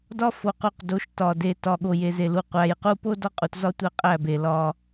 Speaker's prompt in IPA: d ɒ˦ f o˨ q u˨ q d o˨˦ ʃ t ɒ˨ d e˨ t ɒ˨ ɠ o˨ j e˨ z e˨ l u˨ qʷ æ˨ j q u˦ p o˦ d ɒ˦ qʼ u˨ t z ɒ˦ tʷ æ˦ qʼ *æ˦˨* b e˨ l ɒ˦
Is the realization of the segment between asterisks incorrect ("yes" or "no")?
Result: no